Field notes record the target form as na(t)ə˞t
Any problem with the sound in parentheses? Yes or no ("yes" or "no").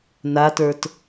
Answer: no